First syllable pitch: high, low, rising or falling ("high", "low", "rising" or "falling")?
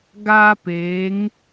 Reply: high